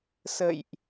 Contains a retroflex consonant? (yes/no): no